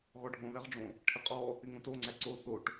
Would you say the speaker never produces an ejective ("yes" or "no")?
no